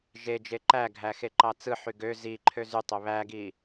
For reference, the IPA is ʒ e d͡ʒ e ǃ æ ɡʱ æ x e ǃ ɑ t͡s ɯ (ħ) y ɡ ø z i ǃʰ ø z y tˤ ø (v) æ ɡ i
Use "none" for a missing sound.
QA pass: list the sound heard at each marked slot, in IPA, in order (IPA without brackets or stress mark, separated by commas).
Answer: ħ, β